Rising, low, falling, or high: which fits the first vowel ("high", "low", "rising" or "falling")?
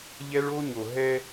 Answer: high